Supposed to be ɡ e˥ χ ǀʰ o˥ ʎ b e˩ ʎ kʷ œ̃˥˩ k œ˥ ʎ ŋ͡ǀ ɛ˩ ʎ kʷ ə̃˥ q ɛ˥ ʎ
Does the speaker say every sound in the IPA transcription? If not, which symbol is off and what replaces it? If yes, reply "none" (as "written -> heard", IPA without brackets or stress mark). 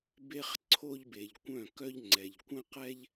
ɡ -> b